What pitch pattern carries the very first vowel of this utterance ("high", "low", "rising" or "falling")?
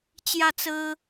falling